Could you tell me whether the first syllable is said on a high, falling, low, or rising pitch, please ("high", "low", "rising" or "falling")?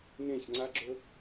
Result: falling